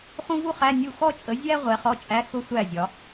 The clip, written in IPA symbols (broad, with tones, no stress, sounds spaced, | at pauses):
χ ũ˥ v u˥ χ æ˧˥˧ nʲ u˥˩ x ɔ˥ t͡ʃʼ ə˨˥ zʲ æ˥ ʁʷ ɛ˨˥ χ ɔ˧˥˧ t͡ʃʼ æ˧˥˧ x ʊ˥ sʷ æ˥˩ zʲ ɒ˩˧